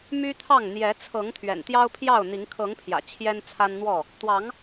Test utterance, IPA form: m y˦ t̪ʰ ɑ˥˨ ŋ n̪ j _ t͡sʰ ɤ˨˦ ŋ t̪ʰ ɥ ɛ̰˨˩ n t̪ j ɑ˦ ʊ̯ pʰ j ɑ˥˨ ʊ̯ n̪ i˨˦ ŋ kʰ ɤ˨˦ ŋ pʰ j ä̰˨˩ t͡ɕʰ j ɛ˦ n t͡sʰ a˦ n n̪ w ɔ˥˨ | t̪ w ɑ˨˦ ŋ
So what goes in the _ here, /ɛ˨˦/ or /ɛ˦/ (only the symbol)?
ɛ˨˦